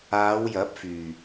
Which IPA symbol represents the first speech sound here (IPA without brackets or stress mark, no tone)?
aː